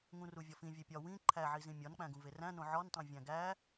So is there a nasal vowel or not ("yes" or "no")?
yes